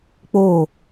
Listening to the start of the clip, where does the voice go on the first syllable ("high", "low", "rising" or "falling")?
falling